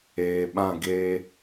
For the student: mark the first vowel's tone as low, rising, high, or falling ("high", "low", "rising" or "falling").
low